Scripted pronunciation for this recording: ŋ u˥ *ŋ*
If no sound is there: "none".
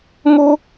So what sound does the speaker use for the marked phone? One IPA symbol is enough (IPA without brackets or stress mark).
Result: none